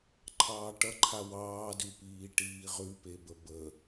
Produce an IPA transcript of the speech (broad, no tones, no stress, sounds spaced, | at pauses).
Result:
ǃʰ ɑː ʈ ʌ ǃʰ a w ɑː d ʉ p iː ʈ iː ʁ ʉ p e b ə b ə